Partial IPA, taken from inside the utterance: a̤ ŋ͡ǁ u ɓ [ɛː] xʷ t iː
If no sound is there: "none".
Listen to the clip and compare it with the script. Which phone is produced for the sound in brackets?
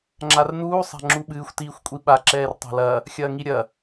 ɨː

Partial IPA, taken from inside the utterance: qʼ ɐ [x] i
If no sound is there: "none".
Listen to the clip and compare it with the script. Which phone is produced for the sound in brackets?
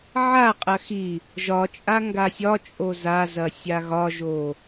x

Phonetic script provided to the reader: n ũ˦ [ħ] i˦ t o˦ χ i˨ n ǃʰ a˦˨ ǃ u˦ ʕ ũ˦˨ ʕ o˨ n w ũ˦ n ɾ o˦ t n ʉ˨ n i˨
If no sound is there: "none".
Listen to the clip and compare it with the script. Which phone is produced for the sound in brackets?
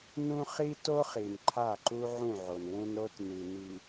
χ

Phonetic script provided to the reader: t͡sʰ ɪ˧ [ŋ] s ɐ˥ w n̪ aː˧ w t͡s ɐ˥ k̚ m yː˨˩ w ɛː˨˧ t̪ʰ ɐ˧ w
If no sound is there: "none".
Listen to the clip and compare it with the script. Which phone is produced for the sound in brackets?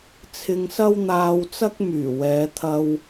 ŋ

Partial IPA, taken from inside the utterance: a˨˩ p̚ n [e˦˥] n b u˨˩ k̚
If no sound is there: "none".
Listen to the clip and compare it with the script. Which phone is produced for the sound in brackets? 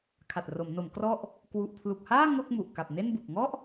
e˥˩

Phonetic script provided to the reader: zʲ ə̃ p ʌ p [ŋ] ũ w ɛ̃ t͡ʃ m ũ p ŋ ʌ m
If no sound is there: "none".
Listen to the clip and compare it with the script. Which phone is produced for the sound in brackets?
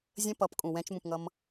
kʼ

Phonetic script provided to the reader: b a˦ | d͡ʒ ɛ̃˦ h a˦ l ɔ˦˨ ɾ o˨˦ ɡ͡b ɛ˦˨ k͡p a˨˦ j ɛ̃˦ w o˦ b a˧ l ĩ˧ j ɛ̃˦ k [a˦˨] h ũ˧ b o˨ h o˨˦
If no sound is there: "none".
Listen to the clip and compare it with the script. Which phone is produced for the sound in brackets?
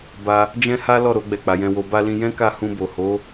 a˦˨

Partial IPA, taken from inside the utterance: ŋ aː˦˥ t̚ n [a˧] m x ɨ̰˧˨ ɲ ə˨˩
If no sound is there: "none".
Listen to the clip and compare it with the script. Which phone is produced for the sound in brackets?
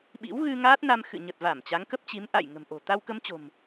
a˧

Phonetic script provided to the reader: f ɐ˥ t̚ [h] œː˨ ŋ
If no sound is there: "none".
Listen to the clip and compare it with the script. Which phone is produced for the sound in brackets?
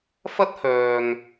h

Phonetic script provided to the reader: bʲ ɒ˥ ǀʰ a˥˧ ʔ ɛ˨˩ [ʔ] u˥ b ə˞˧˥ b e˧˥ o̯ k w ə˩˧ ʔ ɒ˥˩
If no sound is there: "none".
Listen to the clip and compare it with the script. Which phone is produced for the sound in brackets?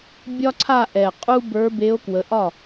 qʼ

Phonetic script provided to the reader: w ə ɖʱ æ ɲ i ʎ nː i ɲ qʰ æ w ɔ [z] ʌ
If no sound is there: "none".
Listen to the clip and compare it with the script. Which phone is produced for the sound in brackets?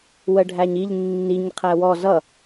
z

